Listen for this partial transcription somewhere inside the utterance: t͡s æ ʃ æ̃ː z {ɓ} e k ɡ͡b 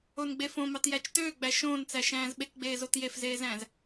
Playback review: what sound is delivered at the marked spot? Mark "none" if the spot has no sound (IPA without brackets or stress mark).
ɓ